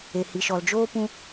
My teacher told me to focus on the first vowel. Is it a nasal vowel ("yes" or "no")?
no